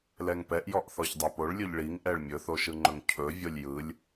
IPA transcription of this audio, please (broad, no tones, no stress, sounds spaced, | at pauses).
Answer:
l ɛ ŋ p ɛ ʔ j ɔ ʔ θ ɔ ç dˤ ɛ p o ɭ lʲ ɵ ʎ ɭ i ŋ ʔ ɛ ɭ mʲ ɵ θ o ʃ ɯ ŋ͡ǃ ɵ ŋ cʰ ɵ vʲ o lʲ j ɯ lʲ